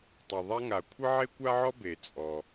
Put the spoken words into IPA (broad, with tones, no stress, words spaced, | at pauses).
tˤɵ˩ ðˤa˥ŋa˩ kʷʰɘ˥ʕe˥kʷa˥ʕɔ˥ be˩t͡sʼɔ˩